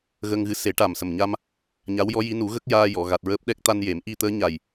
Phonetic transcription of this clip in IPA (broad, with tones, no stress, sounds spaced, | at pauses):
ɣ ə˧ ŋ ɣ ɨ˧˥ s e˨˩˦ ʈ a˨˩ m s ə˨˩ m ɲ a˧ m | ɲ a˧˥ w j ɔ˧˥ j i˧˥ n u˨˩˦ ɣ ə˦˥ k̚ j aː˧ j ɔ˨˩˨ ɣ a˨˩ t̚ ɹ əː˦˥ p̚ ɗ ɛ˦˥ k̚ t̪ a˧ n j e˨˩˦ m ʔ i˧ t̪ əː˧˥ ɲ a˨˩ j